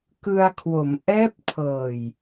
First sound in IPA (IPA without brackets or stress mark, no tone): k